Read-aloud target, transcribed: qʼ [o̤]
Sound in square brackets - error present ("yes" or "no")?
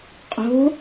no